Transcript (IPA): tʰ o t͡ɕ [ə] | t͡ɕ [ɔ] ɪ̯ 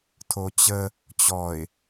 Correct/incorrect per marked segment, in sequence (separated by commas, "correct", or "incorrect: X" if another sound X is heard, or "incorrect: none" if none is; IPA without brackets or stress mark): correct, correct